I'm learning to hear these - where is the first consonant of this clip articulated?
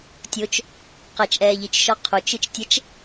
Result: tongue tip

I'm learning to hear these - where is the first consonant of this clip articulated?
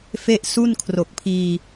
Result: lips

